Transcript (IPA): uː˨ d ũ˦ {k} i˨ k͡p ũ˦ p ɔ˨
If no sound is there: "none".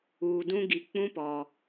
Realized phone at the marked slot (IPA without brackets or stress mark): ɡ